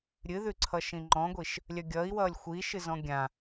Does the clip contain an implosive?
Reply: no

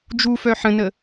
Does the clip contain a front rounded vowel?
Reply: yes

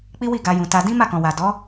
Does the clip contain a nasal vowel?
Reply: yes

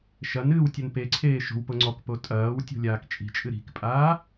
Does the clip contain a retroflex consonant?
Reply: no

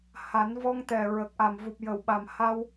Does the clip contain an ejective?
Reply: no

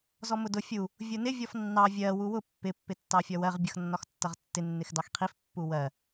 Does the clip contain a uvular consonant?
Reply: yes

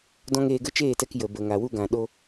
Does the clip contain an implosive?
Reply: yes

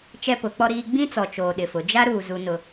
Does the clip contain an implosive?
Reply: yes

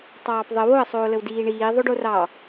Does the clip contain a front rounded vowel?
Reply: no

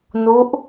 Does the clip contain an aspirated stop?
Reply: no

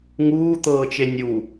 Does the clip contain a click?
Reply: no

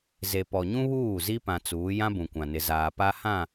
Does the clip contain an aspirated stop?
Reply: no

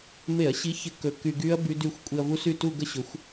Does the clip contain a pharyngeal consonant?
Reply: no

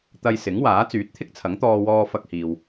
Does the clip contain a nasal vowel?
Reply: no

